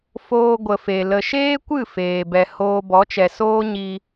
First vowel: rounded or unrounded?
rounded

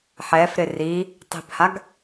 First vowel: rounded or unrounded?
unrounded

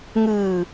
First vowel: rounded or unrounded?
unrounded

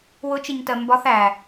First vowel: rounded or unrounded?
rounded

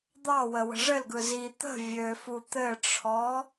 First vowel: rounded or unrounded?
unrounded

